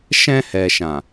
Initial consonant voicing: voiceless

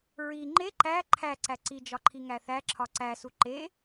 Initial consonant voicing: voiced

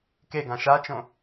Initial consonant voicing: voiceless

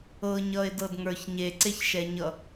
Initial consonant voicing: voiced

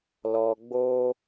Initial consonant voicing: voiced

